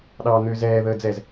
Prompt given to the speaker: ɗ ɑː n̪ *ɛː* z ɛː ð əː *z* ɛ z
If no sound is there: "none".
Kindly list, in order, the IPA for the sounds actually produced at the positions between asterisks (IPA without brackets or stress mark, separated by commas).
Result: ʏː, d͡z